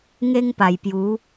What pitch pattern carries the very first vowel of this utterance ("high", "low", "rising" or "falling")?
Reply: high